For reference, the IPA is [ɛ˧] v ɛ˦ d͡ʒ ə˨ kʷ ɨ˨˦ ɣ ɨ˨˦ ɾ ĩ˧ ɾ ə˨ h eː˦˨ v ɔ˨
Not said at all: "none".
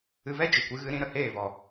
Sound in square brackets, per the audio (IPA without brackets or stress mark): ɨ˧